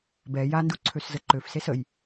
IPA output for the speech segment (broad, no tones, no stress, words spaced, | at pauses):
bɛ jandu ǀʰøszəǃøfses əj